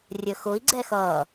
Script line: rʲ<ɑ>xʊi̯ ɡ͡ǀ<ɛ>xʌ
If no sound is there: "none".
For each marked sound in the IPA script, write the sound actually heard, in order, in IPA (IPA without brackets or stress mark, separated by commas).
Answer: ə, ɛ